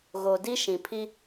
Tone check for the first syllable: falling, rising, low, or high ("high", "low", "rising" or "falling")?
low